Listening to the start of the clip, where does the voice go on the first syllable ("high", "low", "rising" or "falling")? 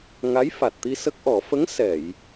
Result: rising